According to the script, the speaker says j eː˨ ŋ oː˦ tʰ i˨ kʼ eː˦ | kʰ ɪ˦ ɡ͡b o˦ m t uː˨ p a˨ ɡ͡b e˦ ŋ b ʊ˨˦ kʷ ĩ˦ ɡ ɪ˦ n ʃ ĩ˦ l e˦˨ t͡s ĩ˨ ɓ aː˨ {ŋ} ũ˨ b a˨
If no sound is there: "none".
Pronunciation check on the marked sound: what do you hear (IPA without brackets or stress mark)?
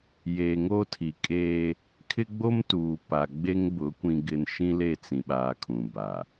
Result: kʰ